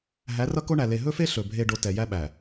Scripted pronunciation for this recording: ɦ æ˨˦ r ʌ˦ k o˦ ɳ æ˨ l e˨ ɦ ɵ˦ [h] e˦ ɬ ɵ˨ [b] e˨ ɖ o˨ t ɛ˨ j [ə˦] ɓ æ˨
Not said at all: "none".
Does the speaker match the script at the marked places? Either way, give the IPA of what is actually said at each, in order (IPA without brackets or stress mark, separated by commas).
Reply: f, bʱ, æ˦